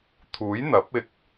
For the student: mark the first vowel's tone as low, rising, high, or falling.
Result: rising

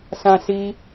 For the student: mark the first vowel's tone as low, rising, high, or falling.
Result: high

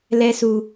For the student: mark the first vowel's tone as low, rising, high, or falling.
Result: high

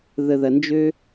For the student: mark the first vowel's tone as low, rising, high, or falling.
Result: low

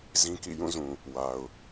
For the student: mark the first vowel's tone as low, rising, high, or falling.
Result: high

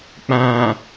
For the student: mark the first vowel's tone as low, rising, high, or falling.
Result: low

